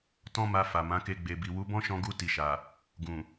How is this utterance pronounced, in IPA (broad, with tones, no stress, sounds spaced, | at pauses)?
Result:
t ɔ̃˦ m a˧ f a˨ m ã˨˦ k e˧ ɡ͡b e˨ b i˨ w u˨˦ b ɔ̃˦ ʃ ɔ̃˧ ɡ u˧ t i˨ ʃ a˨ | ɡ ũ˨